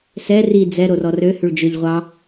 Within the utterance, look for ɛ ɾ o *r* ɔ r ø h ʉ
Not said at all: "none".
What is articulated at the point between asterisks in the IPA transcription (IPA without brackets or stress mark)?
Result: r